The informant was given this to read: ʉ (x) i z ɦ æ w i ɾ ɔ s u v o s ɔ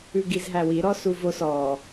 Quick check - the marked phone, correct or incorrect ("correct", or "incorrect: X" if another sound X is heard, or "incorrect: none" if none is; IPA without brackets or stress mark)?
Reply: incorrect: ɡ